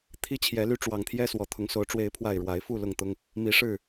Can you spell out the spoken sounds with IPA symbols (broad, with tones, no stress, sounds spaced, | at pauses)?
t̪ʰ i˦ t͡ɕʰ j ɛ˨˦ l y˦ ʈ͡ʂ w ɑ˨˩ ŋ t̪ʰ j ɛ˦ s w ɔ˨˩ t̪ʰ ʊ˨˦ ŋ s o˨˦ ʊ̯ ʈ͡ʂ w e˨˦ ɪ̯ pʰ w a˨˩ ɪ̯ ɻ w a˨˦ ɪ̯ f u˥˨ l ʊ˥˨ ŋ t̪ ʊ˦ ŋ | m i˨˦ ʂ ɻ̩˥˨